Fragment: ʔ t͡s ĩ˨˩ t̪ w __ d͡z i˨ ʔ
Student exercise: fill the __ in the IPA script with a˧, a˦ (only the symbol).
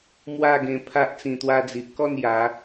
a˧